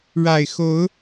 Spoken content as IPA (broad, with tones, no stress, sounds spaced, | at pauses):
ɻ a˨˩ ɪ̯ x o˨˦ ʊ̯